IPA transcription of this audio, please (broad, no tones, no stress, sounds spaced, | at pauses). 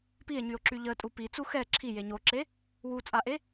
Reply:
p i e̯ ɲ y o̯ ǁ y ʎ ə tʼ u p i t͡s u x ɛ ǁʰ i j e ɲ o ǁ e | w u t͡sʼ a ʔ e